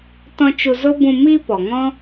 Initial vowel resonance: nasal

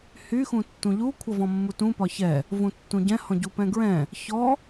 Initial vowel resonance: oral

